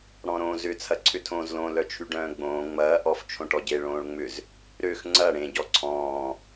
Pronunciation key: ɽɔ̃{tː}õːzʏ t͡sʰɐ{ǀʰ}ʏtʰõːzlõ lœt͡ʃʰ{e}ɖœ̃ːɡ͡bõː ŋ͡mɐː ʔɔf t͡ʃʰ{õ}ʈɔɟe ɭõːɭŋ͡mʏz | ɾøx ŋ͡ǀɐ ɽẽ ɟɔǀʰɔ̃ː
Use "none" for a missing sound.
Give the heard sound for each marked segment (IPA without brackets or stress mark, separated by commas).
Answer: ɾ, ǀʰ, y, õ